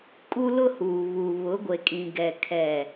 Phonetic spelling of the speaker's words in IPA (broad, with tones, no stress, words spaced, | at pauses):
kʼu˦lʊ˦huː˨ βu˨ βʊ˨˦ɡʷe˨kʼĩ˨ɡɛ˨ kʰɛ˨